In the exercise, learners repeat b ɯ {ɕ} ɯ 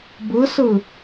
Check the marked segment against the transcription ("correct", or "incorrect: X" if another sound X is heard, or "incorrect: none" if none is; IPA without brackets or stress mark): incorrect: s